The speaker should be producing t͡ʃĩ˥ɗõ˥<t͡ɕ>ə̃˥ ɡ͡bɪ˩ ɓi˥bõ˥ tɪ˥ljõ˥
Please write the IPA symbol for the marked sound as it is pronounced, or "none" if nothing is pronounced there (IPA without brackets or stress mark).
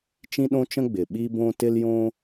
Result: t͡ʃ